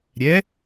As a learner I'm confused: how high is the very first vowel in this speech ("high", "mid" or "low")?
mid